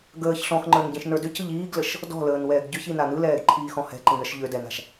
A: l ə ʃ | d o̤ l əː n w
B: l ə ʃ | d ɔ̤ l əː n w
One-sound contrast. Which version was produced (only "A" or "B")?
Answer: B